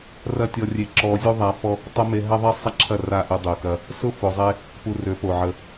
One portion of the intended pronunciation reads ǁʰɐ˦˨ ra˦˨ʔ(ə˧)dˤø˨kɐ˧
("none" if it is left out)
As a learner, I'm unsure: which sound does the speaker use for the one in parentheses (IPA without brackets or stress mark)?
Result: ə˧